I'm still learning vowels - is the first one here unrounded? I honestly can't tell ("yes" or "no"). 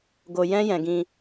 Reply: no